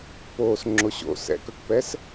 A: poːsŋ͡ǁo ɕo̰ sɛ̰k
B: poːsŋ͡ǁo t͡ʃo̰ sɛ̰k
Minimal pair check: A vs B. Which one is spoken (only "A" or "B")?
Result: A